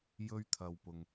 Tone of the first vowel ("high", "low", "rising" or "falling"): high